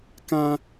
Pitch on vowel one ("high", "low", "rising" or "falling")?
high